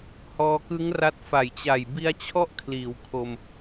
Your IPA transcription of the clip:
h ɔː˧ k ɯ˦˥ ŋ r a˦˥ t̚ f a˨˩ j t͡ɕ a˨˩ j b i˦˥ a̯ t͡ɕʰ ɔ˥˩ ʔ kʰ l iː˩˦ w kʰ o˧ m

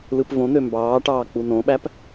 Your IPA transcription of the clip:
l ɯ p v õ n̪ ø m b ɑː ʈ ɑː k͡p u n õ ɓ æ p

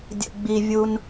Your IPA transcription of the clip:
dʲ ə̰˨ ɡ͡b i˨ vʲ u˧ n

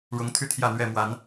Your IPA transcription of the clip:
ɻ ʊ˨˦ ŋ t̪ʰ y˥˨ t̪ʰ j ä˥˨ n̪ ɥ ɛ˥˨ m w a˨˦ n

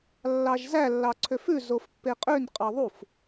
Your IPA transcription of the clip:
lː ɑ ʒ z æ lː ɑ ǀʰ ø f ʉ z o f pː e qʼ ø n qʼ ɑ ðˤ u f

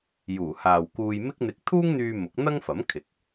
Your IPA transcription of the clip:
j uː˨˩ h aː˨ w k uː˧ j m ɪ˥ k̚ n̪ ɪ˧ k̚ t̪ʰ uː˥ ŋ n̪ yː˧ m ʊ˨˥ k̚ n̪ ɐ˥ ŋ f ɐ˨˥ m kʰ ɪ˨˥ k̚

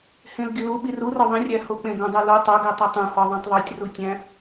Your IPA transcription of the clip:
h ẽ l ɡ i l u ɓ i r u r ɒ ðˤ ĩ rʲ æ h o k͡p ẽ ɡ õ dˤ o l o tˤ o ɡ e tˤ i tˤ ũ h ɒ ðˤ ĩ tˤ ðˤ u tʲ r u tʲ æ̃

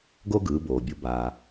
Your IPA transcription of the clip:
ɡ o˥ ɡ ɯː˩˥ b oː˩ bʲ u˩˥ b aː˩

